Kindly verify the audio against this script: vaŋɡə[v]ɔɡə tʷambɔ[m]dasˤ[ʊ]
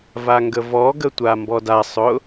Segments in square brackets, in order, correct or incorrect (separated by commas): correct, incorrect, correct